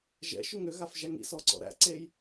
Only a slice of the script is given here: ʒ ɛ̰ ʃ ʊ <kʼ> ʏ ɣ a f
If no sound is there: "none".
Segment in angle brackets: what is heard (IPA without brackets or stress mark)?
ŋ